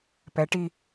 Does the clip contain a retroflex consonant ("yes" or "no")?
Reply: yes